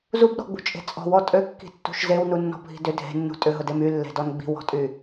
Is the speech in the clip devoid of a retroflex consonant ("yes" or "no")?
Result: yes